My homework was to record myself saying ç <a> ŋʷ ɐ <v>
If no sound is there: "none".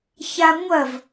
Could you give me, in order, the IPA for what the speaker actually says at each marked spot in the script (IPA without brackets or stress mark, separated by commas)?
a, v